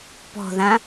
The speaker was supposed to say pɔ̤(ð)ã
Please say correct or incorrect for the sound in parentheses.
correct